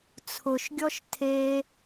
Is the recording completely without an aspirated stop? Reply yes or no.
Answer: no